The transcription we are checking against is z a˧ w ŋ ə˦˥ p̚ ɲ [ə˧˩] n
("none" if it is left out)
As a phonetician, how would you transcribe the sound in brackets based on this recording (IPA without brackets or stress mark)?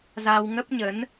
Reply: ə˨˦